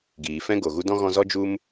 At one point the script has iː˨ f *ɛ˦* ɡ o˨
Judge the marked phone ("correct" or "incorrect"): incorrect